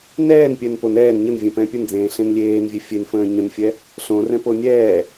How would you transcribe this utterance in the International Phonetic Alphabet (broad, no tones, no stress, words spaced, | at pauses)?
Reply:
nɛːnpʲɛn pon ɛːn ɲənvʲɛ̃pɛ̃ pʲənd͡zẽːɬẽn lʲeːnvʲe fʲenfə̃ː ɲə̃nfʲɛ | ɬõrɛ̃po nʲɛː